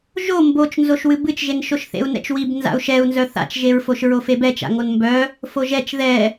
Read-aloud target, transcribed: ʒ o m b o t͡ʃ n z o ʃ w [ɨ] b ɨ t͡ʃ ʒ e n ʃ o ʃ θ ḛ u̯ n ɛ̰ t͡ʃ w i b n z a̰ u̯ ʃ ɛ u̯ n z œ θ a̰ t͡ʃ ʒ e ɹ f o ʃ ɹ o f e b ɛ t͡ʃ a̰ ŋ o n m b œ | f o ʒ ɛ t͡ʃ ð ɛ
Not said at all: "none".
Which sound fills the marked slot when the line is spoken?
ɨ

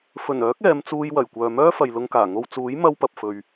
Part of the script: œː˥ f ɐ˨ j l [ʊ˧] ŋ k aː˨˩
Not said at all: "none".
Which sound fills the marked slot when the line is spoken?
ʊ˧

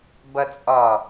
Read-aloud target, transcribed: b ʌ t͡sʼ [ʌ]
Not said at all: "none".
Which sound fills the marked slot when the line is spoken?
ɒ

